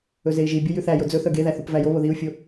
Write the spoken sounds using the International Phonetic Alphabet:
ɵ z e i̯ ʒ i bʲ o j ʉ θ æ j o d͡z ɵ θ œ ɡ e ð æ θ u p v æ j o β o ð i u̯ fʲ o

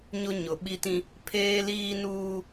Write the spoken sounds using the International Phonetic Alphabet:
ɲ ʊ˦ ɲ ʊ˨ ɓ i˦ t ĩ˦ | pʰ eː˦ l iː˦ n uː˦

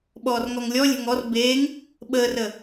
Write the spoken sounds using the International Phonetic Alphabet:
ɓ ɔː r ŋ ɔ ŋ lʲ ɔ lʲ ɛ̤ ŋ ɔ r b eː ŋ | ɓ əː r ə

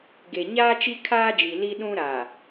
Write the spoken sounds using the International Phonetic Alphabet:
ɡ e˨ ɲ aː˦ t͡ʃ i˦ kʰ aː˦ d͡ʒ i˨ l i˦ ɗ ũ˦ ɾ a˨

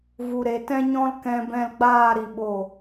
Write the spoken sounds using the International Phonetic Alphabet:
v u˨ ɾ e˨ t ɛ̃˦ ɲ ɔ̃˦ l k ɛ̃˧ b ɛ̃˧ l ɡ͡b aː˦˨ ɾ i˧ ɓ o˦˨

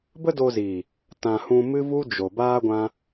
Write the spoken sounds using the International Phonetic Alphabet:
b ə˦ d o˧ z iː˨ | t ã˨ h ũ˧ m ɨ˦ v u˦ d͡ʒ o˨ b aː˦ ɡʷ ã˦

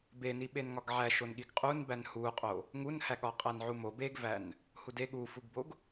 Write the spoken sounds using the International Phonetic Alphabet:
b e n i ɓ e n ŋ ɒ ɡ ʕ æ ʃ o n ɠ i ɡ qʼ u n b æ n h u qʼ o | ŋ u n h æ ɠ ɒ qʼ æ n ʕ u m o b e ɡ v æ n | h u d e ɠ u f u ɡ b o ɡ

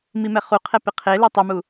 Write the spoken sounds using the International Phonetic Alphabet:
m i m ɛ χ u qʰ ɛ p ɪ qʰ e l e tˤ ʊ m u

